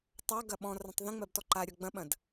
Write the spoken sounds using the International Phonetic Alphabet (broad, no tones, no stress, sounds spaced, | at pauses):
tˤ a ɡ ɐ ɓ ɔ̃ r ɐ̃ tˤ ð ə̃ ŋ͡m ɜ b t ɔ ǃ a ɾʲ ɔ ɡ͡b ɐ̃ ɓ ɐ̃ d